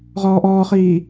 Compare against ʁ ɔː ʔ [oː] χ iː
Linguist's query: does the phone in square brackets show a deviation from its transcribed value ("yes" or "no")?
yes